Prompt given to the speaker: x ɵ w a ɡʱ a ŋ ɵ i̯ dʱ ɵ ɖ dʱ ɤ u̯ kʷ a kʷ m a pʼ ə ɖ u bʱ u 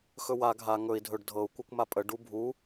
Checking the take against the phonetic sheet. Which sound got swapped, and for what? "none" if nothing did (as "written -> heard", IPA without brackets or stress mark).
none